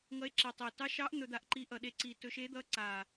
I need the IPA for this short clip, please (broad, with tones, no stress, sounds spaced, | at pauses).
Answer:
ŋ ʌ˧˥ e̯ ǁ e˨˩ tˤ e˨˩ t ɑ˧˥ ʃ ɑ˧˥ ʔ n̪ ɵ˧ d̪ a˧ ʔ ǃ i˧˥ ʔ ʌ˨˩ ɗ e˧ ǀ i˨˩ t ɵ˧ ʃ e˧˥ d̪ ʌ˧˥ ǀ a˨˩